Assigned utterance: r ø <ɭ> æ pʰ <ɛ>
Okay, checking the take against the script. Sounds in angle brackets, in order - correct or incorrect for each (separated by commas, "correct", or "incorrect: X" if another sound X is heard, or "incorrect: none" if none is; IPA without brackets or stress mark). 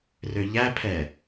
incorrect: ʎ, correct